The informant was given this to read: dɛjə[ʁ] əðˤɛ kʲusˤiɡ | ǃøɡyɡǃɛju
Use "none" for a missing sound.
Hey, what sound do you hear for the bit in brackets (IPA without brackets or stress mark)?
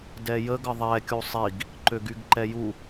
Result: ɡ